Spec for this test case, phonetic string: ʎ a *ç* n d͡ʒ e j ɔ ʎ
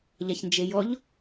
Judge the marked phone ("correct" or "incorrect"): correct